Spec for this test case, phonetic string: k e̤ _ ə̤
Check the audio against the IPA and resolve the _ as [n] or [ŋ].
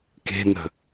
n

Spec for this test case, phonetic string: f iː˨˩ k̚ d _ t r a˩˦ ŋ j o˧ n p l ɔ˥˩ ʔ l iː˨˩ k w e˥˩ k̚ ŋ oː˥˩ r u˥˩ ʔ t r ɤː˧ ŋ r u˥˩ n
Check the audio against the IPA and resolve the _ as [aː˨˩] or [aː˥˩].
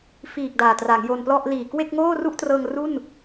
aː˨˩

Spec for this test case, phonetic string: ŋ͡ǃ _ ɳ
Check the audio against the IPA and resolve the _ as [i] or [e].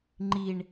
i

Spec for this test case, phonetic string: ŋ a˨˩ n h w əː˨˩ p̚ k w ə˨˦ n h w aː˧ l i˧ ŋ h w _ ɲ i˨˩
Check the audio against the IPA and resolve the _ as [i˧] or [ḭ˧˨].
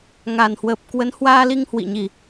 ḭ˧˨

